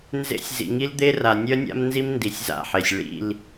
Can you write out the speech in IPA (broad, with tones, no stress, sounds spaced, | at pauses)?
n z ḛ˧ sʲ z ḭ˨ ŋ i˦ l d̪ e˦ r a˨ nʲ œ˦ nʲ a̰˦ m n z i˦ m n d i˨ sʲ z a̰˦˨ ħ e˨ sʲ ɭ ḭ˦˨ l